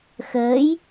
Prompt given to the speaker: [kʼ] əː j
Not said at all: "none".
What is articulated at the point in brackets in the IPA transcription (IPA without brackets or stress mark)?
x